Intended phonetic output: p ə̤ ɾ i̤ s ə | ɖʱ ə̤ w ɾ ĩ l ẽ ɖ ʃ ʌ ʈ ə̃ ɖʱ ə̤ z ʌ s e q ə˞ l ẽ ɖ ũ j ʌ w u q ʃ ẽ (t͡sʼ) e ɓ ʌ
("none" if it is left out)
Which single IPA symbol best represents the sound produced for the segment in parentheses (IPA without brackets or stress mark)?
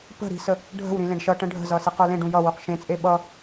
t͡sʼ